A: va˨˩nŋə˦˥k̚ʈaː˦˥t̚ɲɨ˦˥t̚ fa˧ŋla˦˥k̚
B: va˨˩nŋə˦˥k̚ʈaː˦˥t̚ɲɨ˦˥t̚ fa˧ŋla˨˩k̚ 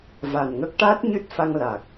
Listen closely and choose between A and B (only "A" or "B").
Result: B